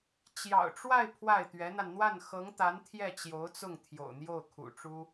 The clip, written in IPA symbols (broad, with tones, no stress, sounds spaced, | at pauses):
t͡ɕ j ɑ̰˨˩ ʊ̯ ʈ͡ʂ w a˥˧ ɪ̯ pʰ w a˥˩ ɪ̯ t̪ ɥ ɛ˧˥ n̪ a˧ n n̪ w a˥˩ n x ɤ˧˥ ŋ t̪ a˧˥ n t̪ʰ j ɛ˥˩ t͡ɕ j o˧˥ ʊ̯ t͡s ʊ˥˩ ŋ t̪ʰ j o̰˨˩ ʊ̯ n̪ j o˥˩ ʊ̯ kʰ ṵ˨˩ ʈ͡ʂ u˥